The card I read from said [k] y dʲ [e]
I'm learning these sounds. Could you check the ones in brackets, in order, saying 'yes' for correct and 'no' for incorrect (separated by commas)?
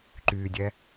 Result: no, no